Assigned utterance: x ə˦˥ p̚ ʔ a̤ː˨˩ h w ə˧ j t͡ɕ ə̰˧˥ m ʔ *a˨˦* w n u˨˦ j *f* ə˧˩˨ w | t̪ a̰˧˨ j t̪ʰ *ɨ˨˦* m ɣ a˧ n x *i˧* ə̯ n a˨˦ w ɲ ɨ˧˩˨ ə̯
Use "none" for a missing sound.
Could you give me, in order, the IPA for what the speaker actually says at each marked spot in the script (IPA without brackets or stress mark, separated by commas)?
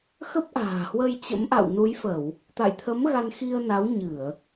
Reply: a̰˧˨, f, ə˨˦, i˧